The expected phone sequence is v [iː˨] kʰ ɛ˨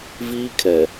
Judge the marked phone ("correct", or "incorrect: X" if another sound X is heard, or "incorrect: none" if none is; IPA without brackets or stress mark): incorrect: iː˦